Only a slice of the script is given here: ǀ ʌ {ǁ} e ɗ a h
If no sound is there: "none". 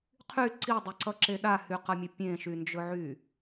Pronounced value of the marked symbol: ǁ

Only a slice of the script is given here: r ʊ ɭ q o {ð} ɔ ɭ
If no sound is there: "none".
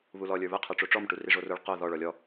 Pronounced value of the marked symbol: ð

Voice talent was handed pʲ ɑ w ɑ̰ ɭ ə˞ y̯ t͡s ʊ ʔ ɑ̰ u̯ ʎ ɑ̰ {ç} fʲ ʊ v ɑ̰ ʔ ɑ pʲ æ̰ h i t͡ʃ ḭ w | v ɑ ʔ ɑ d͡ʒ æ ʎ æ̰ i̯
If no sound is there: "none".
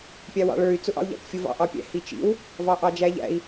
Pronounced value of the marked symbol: t͡ʃ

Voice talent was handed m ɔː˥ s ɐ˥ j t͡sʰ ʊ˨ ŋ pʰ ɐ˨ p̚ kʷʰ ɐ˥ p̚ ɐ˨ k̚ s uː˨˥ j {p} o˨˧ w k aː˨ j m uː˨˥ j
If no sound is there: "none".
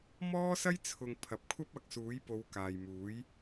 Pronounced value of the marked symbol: p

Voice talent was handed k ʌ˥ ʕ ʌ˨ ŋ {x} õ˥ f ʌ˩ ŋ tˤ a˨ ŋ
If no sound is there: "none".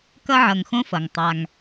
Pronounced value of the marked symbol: x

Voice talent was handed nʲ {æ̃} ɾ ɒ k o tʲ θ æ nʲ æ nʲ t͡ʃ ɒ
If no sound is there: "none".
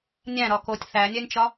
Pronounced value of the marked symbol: æ̃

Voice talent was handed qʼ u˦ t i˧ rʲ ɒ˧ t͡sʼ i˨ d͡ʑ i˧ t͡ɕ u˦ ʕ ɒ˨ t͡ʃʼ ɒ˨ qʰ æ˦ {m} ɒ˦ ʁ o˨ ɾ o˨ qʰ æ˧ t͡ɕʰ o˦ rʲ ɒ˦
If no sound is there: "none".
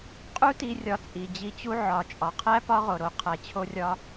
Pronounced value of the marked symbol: p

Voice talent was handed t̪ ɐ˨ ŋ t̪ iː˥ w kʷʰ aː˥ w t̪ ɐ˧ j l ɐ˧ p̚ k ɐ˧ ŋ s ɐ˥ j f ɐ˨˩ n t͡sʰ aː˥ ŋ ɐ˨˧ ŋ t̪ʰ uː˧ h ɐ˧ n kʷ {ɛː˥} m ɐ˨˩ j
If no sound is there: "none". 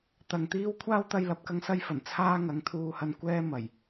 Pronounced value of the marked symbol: ɛː˥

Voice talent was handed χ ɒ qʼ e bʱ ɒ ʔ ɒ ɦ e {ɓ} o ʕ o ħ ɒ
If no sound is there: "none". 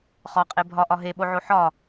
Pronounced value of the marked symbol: ɓ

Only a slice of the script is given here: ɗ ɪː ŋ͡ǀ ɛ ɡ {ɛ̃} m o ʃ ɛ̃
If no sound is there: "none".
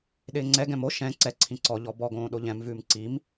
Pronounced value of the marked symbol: ɛ̃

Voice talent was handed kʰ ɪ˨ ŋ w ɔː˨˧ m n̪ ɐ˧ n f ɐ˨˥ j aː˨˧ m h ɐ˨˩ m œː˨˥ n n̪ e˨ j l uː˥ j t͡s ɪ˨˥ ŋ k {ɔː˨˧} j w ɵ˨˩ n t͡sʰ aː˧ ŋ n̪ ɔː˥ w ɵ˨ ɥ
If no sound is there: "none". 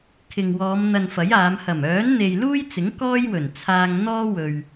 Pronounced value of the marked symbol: ɔː˥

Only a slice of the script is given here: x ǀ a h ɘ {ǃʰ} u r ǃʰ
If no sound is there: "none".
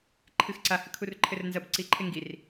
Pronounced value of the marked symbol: kʰ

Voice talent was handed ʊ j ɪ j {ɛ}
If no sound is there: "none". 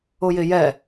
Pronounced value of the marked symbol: ɛ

